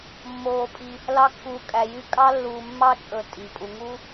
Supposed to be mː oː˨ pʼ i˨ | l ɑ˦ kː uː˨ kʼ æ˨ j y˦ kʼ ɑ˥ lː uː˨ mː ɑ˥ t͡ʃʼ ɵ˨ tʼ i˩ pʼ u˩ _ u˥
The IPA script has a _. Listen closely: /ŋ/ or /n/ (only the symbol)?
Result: ŋ